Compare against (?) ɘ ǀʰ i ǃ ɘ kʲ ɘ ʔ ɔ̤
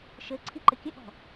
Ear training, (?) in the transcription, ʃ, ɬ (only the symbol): ʃ